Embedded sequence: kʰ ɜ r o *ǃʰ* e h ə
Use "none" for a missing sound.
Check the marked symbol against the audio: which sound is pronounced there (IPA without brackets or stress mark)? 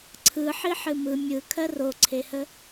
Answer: ǀʰ